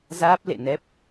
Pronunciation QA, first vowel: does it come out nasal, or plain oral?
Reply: oral